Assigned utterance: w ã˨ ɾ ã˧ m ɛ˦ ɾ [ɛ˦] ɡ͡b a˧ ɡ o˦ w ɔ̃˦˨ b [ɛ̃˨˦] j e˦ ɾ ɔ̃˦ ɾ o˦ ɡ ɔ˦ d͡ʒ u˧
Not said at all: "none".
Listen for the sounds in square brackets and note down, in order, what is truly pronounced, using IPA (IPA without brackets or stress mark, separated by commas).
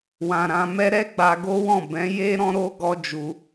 ɛ˦, ɛ̃˨˦